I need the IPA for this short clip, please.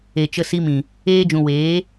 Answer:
e˨ t͡ʃə˧si˧mĩ˨ | eː˧d͡ʒũ˨ weː˨˦

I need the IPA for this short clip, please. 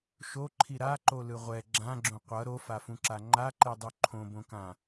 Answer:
ʃoǃʰi ɾaǃolɯ ʁʷɛ ɡ͡ǁãɡ͡ǁõ qʷʌ ɾofafũǁa ŋ͡ǃaǃɛdˤu ǃʰõbõkã

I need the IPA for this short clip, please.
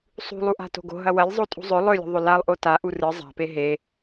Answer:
sˤṳlˠuʔa̤ to̤ɡo̤ ɦɐwɐlʲ zˤotʼṳzˤɵ lˠɵlʲṳ ðˤɵlalˠʔo ta ʔurɨ zˤa̤pe ɦe

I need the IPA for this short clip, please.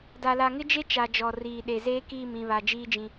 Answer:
da˨la˨ŋɪ˦d͡ʒe˦ t͡ʃa˨d͡ʒɔ˨ riː˨ ɗe˨zeː˦kiː˦˨m ĩ˨βa˨ d͡ʒiː˦d͡ʒĩ˦

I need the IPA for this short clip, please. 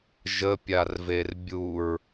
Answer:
ʒəpʲarver bʲuɹ

